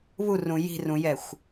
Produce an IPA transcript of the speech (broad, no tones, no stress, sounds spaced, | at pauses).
β u r ũ j i̤ r ũ j ɛ xʷ